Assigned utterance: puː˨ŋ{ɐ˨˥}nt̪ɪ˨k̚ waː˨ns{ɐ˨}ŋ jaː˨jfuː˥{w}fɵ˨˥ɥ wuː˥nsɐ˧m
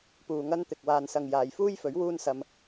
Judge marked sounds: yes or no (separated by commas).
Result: no, yes, no